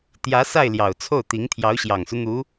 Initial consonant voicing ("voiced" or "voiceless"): voiceless